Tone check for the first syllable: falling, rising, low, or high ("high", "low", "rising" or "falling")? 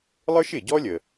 high